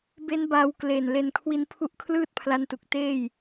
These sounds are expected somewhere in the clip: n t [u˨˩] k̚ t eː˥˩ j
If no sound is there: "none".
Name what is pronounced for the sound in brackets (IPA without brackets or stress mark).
u˨˩